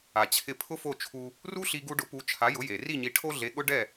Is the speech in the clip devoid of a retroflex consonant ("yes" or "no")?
no